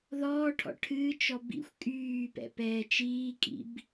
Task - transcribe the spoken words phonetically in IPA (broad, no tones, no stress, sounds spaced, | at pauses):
ð ɔː ʈʰ ɔ̰ ʈʰ ɨː t͡ʃ ɔ b ḭ xʷ kʼ yː p ɛ̰ p ɛː t͡ʃ iː kʼ ḭ b